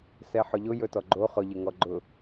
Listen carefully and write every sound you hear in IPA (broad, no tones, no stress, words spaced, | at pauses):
sɛħʊʎʊ jɵtɔɡ͡ǃo χʊʎɪ ŋɔɡ͡ǃʊ